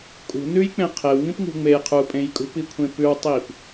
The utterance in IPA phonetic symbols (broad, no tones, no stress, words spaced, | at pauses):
kʼṳ nʉjk͡pẽ qʰewŋĩpŋṳ ŋ͡mej qʰupʼẽj kʼṳpikʷʰẽ pʉwtˤip